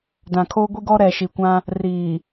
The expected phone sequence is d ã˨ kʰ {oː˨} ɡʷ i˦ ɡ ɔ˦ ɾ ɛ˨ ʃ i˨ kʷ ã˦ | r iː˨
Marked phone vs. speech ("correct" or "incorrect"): incorrect